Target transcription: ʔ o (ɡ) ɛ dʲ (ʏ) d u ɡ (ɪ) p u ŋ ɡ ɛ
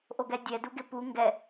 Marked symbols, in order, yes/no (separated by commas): yes, no, yes